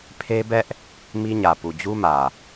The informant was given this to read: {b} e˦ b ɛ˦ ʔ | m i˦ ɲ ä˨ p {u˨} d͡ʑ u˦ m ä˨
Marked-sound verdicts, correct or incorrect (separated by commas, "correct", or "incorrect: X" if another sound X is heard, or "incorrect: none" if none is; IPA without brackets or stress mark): incorrect: pʰ, correct